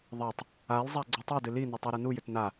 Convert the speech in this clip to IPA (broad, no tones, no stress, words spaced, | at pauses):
ðˤatˤ | alzˤa ɡ͡ǀitˤudɨ linʏ tˤɛɾɨnujʏt na